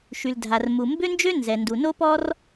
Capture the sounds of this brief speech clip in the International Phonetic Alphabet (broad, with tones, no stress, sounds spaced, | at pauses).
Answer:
ʃ y˩ l dʱ a˩ r m u˩ m b ø˥ n d͡ʒ ø˥ n z ɛ˩ n d u˩ n o˥ p ɔ˥ r